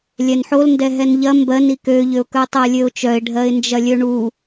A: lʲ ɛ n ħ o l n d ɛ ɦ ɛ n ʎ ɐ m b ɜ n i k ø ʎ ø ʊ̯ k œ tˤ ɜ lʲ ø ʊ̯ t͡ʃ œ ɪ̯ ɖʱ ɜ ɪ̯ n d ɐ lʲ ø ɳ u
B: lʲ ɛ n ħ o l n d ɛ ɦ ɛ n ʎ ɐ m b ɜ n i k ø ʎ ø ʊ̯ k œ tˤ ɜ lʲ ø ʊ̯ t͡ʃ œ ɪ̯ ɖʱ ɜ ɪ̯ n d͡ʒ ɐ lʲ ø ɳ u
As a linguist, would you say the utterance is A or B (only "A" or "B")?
B